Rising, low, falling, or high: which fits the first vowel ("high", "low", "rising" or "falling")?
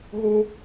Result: high